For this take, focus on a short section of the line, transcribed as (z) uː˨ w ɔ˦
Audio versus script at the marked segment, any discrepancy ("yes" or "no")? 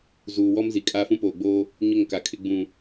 no